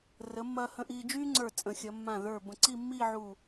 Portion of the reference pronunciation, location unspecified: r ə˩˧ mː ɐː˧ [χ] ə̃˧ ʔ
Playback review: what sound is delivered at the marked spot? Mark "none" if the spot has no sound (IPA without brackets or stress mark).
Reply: h